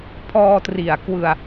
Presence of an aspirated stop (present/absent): present